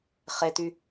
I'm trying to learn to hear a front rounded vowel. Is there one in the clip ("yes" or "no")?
yes